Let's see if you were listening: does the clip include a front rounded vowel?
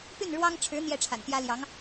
yes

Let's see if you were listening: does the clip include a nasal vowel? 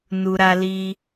no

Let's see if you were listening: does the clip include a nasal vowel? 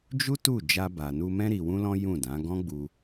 yes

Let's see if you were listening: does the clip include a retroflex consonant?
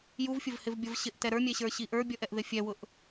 no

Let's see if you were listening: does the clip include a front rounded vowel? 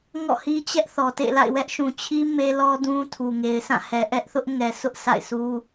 no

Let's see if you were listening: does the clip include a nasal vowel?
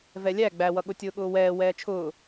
no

